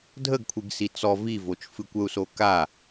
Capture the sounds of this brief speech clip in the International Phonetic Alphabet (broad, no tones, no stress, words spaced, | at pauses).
dʱəɡkʷʰɨɡ sit͡sɔ vivot͡ʃ fɨkʷəu̯so ka